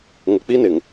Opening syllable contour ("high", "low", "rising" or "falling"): low